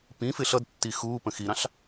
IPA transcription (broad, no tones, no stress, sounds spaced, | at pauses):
p ĩ f ɪ ɬ ʌ d tː i x uː p ə̃ x i ɾ ɑ̃ ɬ